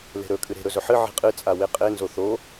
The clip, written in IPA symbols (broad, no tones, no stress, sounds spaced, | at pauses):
l e̤ ɾ ɵ kʼ ɨ ɾ e̤ ɾ ɵ z ɵ ħ ɨ ʕ i̤ qʼ ɨ t͡sʼ a w e qʼ e n z o θ o